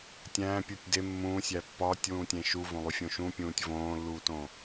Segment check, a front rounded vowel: absent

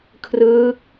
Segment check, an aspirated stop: present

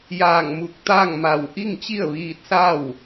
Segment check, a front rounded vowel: absent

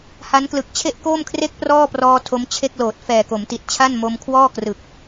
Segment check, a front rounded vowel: absent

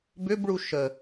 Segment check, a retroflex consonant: present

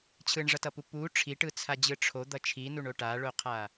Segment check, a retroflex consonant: present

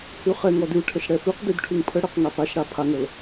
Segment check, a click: absent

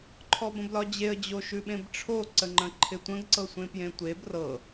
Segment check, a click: present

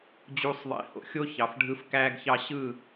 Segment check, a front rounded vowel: absent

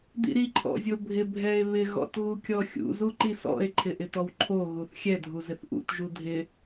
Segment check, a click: present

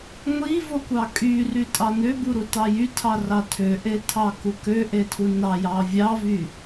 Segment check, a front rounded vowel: present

